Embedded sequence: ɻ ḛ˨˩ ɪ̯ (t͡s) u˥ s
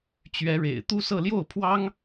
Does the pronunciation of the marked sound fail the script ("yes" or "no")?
yes